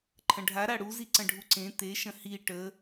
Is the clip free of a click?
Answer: no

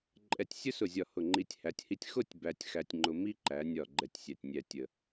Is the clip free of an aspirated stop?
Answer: yes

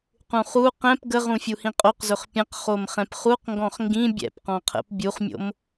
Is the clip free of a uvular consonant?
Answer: no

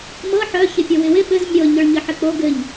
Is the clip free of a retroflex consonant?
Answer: no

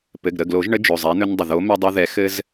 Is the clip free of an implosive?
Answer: yes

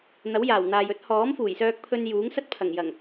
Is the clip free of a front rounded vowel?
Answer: no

